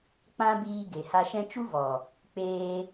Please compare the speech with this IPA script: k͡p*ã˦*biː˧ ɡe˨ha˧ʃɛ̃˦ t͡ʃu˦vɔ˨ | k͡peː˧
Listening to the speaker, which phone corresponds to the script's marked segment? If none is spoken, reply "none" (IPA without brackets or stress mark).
ã˦